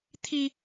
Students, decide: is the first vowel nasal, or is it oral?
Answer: oral